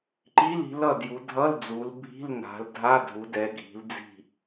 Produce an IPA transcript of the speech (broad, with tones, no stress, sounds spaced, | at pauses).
ǃ i˧˥˧ l i̤˩˧ l ʌ˥˨ d j u˩˧ dʱ ʌ˧˥˧ l d͡z u˩˧ l bʱ i̤˧˥˧ l n a̤˩˧ l dʱ a˧˥˧ dʱ u˩˧ d ɛ˩˧ ɡʱ i̤˩˧ l d͡z i̤˥˨